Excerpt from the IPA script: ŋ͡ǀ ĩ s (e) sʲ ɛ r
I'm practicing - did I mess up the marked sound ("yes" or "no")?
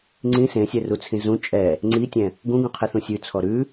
yes